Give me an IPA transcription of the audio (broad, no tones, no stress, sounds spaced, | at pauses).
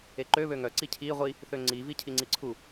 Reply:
e ǃ ø β ø ŋ œ ǀ i cʰ i ʁʷ i | θ ø ŋ͡ǀ i v i cʰ i ŋ͡ǀ i ǀʰ u